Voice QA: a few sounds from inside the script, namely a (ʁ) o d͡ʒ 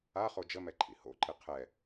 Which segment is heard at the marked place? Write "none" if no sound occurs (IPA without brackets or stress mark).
χ